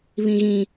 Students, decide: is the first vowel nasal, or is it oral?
nasal